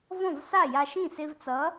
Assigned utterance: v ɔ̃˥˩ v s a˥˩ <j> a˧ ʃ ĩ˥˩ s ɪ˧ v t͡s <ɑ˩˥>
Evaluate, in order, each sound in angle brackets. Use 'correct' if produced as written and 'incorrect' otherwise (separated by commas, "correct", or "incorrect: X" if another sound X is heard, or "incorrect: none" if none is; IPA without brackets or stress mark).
correct, incorrect: ʌ˩˥